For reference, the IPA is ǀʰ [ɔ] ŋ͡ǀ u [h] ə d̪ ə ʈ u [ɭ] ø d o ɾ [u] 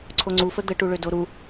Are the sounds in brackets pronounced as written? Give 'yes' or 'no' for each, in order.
no, no, yes, yes

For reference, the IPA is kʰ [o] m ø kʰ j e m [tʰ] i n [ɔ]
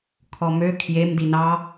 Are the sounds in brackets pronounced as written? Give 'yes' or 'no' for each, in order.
no, no, no

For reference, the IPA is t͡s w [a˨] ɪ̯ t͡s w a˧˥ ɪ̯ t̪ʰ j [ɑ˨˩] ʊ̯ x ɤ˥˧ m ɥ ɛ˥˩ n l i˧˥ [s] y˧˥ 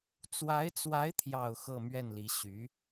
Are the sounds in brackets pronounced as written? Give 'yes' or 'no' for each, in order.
no, yes, no

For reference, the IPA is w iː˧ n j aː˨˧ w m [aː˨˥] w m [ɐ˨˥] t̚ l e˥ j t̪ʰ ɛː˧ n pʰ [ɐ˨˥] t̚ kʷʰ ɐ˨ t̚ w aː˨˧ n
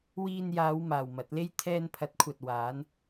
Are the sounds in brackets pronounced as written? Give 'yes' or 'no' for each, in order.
no, yes, yes

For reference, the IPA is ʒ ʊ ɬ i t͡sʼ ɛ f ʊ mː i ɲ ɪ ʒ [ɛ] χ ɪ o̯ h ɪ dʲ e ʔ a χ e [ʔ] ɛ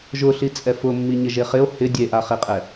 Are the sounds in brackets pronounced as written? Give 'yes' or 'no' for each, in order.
no, no

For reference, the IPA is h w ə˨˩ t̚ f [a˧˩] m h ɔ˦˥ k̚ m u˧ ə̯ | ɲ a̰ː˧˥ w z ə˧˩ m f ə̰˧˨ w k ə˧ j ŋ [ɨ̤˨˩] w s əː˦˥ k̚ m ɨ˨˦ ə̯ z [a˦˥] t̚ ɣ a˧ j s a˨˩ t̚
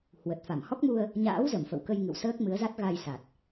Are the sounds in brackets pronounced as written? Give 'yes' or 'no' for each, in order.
yes, no, yes

